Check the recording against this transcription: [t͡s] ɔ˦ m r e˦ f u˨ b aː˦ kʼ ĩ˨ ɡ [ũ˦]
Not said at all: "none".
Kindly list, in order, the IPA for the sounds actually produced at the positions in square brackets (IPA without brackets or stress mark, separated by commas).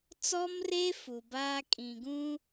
t͡s, ũ˦